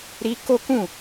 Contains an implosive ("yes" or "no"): no